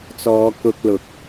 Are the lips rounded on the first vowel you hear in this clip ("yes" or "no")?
yes